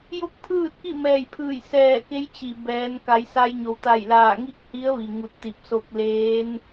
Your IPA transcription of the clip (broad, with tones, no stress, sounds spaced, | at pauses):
j o˥˨ k̚ pʰ ɯː˥˨ t̚ k i˥˨ m ɛː˧˩ j pʰ ɯː˧˩ j s ɛː˧˩ k e˧˥ j t͡ɕ i˩ b ɛː˩˧ n k a˩˧ j s a˧ j ɲ o˩ w t̪ a˧˩ j l aː˧˩ ŋ i˥˨ k̚ h i˧˥ ə̯ ʋ i˩ ŋ u˧˩ t̚ t̪ i˧˩ p̚ s o˧ k̚ l eː˧˥ n